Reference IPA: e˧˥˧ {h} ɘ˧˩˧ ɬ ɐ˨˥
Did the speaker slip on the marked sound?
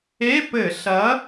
yes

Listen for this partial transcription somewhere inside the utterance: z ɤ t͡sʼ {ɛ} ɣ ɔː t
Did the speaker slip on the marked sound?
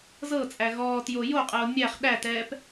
yes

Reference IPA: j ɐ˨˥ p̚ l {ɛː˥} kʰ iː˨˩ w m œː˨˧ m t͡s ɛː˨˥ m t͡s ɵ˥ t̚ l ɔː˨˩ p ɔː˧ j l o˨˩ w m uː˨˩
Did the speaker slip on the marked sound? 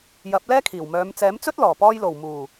no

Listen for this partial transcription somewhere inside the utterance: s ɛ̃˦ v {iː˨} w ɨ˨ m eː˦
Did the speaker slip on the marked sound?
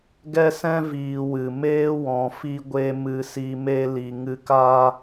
no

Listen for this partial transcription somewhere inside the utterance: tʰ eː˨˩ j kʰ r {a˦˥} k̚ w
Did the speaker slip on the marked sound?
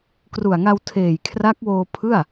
no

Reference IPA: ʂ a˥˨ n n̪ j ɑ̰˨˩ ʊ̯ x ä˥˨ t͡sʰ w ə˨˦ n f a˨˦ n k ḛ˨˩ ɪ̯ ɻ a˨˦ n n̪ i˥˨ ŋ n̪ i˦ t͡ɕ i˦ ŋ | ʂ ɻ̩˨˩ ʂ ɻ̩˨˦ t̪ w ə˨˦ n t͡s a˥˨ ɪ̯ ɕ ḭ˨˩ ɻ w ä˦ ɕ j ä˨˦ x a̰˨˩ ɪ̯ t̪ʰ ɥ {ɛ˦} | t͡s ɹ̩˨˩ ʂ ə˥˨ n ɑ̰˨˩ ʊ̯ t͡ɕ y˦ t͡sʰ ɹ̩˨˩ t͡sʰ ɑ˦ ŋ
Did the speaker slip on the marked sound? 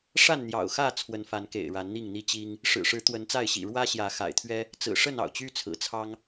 no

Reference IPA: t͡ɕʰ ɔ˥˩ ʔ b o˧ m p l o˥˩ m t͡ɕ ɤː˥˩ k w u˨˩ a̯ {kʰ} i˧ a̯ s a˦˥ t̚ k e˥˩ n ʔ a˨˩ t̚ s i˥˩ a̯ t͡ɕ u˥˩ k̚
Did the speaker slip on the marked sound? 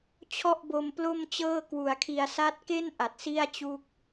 no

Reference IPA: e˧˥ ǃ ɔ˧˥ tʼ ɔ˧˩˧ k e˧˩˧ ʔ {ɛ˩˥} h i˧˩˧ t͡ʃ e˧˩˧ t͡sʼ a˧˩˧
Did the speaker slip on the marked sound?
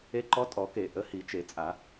yes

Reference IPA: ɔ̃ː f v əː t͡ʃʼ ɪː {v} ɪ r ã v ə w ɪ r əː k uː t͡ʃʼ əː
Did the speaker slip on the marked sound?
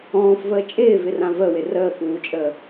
no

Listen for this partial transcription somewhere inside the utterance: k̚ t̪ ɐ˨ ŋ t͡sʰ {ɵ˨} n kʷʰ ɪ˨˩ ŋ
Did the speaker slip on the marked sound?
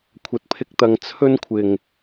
yes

